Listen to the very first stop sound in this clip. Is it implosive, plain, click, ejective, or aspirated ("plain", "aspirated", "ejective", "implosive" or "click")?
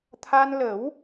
aspirated